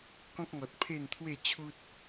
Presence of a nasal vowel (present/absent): present